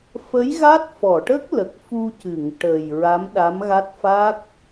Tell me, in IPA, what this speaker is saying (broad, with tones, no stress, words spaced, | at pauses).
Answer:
fə˧˥jɣa˦˥t̚fɔ˨˩˨ʈə˦˥k̚ lə˨˩k̚fu˧cɨ˨˩˨ŋ ʈə˨˩j ɹa˧˥mɗa˧˥mɣa˦˥t̚ fa˦˥k̚